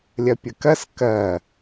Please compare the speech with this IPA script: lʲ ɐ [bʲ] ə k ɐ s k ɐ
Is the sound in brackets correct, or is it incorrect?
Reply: incorrect: pʲ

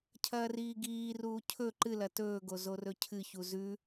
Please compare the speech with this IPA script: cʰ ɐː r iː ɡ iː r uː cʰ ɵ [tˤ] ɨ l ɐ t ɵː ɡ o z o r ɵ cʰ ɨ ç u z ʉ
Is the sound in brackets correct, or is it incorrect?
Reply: incorrect: ǃ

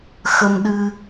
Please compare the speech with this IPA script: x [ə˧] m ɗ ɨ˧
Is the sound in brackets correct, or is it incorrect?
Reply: correct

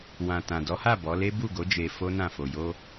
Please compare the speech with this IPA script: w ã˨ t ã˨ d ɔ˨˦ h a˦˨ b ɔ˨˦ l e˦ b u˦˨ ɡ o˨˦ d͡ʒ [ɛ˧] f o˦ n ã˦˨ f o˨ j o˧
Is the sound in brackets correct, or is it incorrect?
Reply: incorrect: e˧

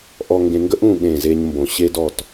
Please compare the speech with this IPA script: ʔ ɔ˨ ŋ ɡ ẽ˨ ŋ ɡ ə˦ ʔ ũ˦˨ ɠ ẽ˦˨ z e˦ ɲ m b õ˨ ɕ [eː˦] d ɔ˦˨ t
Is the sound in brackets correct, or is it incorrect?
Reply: incorrect: e˦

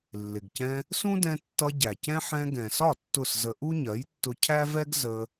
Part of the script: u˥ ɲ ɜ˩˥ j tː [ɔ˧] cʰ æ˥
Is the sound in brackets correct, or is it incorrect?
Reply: incorrect: ʊ˧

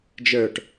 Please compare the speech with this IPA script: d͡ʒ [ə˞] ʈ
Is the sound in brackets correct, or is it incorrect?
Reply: correct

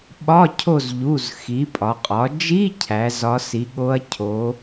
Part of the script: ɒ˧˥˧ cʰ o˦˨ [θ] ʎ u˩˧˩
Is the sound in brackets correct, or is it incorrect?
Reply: incorrect: z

